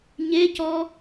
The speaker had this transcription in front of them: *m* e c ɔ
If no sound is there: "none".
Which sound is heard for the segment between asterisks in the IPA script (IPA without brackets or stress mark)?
ɲ